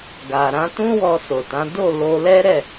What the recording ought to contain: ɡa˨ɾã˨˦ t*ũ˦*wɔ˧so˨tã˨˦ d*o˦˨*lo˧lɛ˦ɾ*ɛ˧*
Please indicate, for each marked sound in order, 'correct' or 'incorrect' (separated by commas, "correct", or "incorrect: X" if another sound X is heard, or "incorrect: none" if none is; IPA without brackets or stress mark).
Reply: correct, correct, incorrect: ɛ˦˨